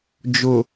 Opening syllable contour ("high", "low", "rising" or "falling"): low